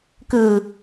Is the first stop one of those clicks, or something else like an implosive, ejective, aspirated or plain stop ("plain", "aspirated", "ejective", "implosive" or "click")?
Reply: plain